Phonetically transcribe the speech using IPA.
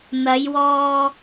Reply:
n̪ ɐ˨˧ j w ɔː˧

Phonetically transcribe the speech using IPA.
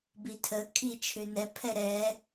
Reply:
b i tʰ ə kʰ i t͡ʃʰ ʏ n ɛ pʰ ɛ ɾ ɛ

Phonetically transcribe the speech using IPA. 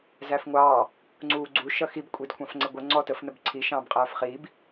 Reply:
z æ f ŋʷ ɑː | ŋ͡ǀ uː ɡ͡ǀ u ʃ ʌ x i b kʷʼ i d kʷʰ ɑ̃ f ŋ͡ǀ ɪ ɡʷ ə ŋ͡ǀ ɔ t ə f n ə b ǀʰ i ʃ ɑ̃ː b qʼ æː f χ iː b

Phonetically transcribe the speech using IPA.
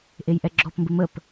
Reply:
ʔ e j ʔ ɛ ɡ͡ǁ ɔ p m b ɘ m ə p

